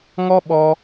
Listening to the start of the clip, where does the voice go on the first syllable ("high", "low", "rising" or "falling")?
high